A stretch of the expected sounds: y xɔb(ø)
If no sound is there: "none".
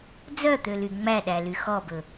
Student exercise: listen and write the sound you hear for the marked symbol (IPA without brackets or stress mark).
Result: ɵ